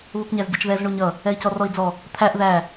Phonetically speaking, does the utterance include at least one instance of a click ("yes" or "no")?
no